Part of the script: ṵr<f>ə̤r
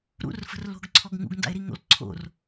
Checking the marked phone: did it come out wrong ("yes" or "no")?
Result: no